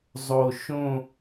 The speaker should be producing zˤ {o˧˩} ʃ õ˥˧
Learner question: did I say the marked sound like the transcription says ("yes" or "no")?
yes